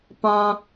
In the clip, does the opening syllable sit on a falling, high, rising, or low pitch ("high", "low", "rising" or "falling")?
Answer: low